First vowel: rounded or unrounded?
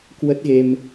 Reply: unrounded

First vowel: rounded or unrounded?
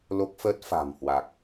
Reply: rounded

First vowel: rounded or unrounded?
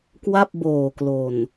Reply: unrounded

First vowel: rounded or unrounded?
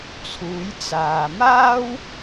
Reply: rounded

